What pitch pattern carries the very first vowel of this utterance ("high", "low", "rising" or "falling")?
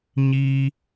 high